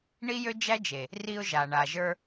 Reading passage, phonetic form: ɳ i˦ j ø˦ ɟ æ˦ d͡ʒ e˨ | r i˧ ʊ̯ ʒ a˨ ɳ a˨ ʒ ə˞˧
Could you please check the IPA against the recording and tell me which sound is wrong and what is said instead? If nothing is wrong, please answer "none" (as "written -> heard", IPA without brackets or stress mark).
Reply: ɟ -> d͡ʒ